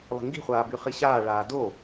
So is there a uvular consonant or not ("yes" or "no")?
yes